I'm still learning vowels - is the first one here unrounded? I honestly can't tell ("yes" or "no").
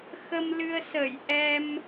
yes